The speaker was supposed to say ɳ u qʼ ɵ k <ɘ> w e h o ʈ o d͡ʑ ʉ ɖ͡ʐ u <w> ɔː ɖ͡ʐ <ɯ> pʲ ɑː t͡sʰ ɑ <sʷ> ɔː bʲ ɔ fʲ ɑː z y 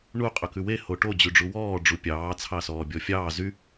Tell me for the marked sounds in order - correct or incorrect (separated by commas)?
incorrect, correct, incorrect, incorrect